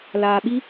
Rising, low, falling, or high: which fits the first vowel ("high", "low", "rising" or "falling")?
low